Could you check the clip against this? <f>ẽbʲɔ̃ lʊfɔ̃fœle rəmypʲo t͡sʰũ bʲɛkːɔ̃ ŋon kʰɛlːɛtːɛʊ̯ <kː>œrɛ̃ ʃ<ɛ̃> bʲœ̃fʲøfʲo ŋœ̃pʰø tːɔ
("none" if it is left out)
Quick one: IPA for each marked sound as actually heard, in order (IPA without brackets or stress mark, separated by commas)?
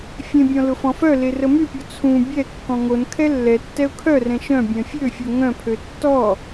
fʲ, kʰ, œ̃